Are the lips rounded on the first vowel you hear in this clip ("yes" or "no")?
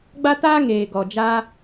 no